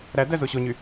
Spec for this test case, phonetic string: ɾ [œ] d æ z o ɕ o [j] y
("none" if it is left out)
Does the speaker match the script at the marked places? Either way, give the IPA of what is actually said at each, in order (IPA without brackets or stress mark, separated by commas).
æ, ɲ